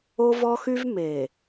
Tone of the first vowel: high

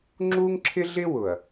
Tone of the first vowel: high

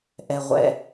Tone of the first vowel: low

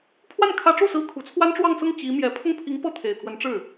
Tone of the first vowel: falling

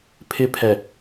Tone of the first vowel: high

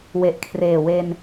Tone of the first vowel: low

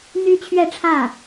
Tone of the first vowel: high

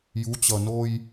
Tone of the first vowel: rising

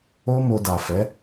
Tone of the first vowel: high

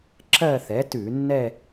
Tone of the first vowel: falling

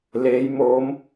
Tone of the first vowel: rising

